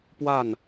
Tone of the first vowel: falling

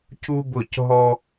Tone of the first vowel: high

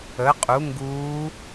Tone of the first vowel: rising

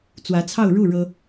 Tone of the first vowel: rising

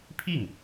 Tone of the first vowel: falling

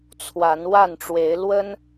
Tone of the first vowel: rising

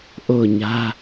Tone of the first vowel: falling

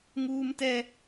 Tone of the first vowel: high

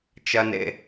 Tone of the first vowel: low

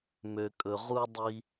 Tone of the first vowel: low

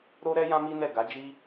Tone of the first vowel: high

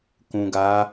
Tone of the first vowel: low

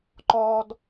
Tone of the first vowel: low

